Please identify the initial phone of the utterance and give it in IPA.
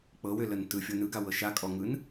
k͡p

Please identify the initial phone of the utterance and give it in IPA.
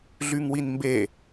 ɮ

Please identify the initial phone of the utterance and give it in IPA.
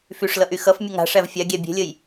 f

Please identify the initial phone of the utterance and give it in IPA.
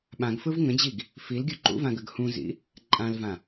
ɓ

